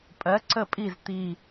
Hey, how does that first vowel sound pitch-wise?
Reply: rising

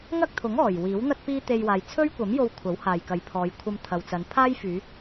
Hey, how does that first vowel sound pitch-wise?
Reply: high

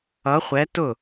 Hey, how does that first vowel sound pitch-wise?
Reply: rising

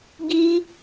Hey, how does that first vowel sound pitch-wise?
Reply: high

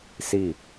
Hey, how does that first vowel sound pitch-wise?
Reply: falling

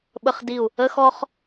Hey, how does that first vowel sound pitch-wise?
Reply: high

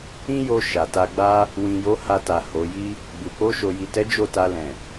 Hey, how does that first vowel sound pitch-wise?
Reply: high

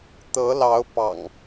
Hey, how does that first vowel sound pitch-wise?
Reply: rising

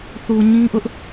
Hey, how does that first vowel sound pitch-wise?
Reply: low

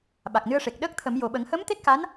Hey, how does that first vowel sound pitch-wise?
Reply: low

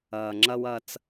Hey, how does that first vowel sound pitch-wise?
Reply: low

